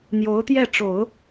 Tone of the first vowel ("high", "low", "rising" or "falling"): rising